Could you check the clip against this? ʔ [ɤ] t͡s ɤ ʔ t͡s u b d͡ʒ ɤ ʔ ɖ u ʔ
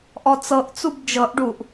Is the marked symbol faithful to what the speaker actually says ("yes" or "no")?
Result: no